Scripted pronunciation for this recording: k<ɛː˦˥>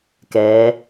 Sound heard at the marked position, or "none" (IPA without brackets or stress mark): ɛː˦˥